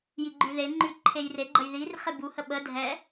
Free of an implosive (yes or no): no